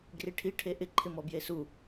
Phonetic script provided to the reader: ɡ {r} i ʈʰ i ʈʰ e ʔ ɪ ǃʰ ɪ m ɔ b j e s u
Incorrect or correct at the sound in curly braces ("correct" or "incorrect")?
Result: correct